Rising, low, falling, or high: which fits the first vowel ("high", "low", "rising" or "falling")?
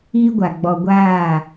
high